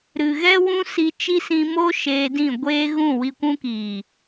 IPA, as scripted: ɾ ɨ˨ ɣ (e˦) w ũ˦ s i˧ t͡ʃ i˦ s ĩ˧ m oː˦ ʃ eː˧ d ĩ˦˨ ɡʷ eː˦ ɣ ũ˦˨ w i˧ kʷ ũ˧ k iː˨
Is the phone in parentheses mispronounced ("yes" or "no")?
yes